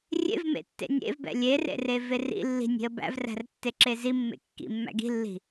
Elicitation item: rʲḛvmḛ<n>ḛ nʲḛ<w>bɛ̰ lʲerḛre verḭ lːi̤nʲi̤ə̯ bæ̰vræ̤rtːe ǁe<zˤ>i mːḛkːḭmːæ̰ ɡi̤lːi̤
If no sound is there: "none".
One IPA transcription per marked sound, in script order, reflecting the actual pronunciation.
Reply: tː, v, z

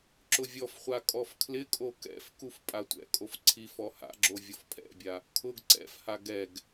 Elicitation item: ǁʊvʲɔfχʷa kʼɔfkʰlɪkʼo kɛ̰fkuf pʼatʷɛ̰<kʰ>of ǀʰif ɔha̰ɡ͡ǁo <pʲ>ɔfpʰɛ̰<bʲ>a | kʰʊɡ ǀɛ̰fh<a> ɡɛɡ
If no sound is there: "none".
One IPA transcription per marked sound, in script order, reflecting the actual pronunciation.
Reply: kʼ, vʲ, bʲ, a

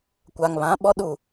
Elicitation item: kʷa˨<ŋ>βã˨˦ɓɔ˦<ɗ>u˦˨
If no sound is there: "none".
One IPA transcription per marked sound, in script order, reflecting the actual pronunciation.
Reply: ŋ, ɗ

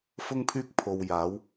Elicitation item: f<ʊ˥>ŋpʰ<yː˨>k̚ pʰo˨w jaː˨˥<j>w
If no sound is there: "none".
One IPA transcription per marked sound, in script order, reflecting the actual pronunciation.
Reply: ʊ˥, yː˥, none

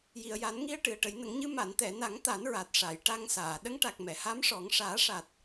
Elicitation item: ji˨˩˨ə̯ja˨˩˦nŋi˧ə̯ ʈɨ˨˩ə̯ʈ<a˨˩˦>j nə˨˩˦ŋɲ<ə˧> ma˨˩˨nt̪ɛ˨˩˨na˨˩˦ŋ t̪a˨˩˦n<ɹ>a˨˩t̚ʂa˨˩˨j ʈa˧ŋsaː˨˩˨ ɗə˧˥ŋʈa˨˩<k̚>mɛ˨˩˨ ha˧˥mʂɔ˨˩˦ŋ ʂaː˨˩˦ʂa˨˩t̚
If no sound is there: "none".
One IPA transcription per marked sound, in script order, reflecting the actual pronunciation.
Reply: ə˨˩˦, ɨ˧, ɹ, k̚

